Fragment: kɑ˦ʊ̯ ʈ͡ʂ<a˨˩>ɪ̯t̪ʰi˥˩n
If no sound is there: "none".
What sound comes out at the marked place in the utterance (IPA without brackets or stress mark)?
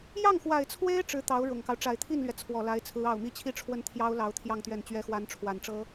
a˨˩